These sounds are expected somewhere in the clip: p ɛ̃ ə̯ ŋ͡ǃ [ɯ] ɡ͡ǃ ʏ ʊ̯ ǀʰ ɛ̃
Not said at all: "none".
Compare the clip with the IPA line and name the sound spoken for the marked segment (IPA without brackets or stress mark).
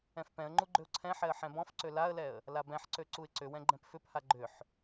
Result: u